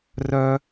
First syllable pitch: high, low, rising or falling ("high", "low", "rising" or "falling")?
high